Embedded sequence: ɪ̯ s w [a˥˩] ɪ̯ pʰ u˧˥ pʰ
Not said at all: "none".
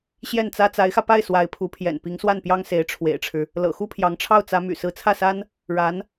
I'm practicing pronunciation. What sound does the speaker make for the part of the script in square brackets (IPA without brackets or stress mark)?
a˧˥